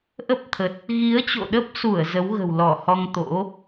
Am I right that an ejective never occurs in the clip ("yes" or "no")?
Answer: yes